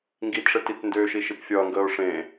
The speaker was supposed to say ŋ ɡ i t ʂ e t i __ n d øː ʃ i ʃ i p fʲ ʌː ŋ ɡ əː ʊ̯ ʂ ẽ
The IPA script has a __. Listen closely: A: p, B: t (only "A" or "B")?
B